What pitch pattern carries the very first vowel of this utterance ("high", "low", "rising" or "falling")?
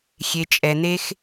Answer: low